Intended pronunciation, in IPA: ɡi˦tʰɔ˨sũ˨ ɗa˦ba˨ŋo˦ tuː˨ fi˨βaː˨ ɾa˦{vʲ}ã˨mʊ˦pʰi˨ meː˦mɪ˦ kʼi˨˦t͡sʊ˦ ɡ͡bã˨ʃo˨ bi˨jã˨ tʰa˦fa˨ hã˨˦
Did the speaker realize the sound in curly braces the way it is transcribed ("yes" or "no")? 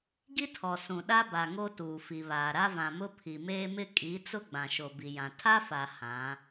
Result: no